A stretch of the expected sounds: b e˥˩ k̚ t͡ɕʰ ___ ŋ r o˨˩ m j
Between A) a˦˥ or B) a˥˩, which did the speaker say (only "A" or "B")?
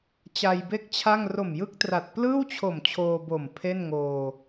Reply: B